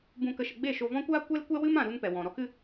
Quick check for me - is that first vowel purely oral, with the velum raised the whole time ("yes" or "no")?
no